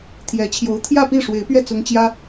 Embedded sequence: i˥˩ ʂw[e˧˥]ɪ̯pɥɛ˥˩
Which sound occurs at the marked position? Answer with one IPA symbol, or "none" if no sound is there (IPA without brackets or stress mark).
e˧˥